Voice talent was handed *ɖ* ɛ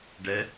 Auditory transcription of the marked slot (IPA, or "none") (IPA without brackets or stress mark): ɖ